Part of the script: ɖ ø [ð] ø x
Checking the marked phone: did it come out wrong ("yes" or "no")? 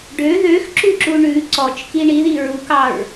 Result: no